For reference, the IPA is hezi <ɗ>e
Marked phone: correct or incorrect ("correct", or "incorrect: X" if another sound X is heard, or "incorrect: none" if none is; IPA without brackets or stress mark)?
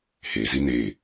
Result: incorrect: n